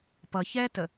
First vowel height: mid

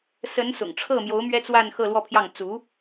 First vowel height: mid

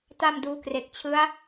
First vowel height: low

